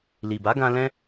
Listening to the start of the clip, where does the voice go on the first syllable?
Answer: low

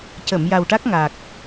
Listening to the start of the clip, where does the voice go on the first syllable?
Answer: low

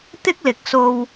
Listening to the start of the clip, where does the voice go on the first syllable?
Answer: high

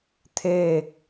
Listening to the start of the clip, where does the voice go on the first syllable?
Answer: falling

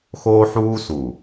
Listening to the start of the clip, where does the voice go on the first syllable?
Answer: high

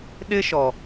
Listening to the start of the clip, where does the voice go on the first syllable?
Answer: high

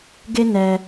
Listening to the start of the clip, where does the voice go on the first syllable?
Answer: high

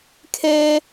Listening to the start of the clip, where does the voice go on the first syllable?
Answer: high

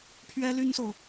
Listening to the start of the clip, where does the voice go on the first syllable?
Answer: high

